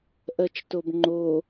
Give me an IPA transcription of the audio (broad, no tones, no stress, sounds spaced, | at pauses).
ʔ ɜ t͡ʃ t o b ŋ͡ǃ o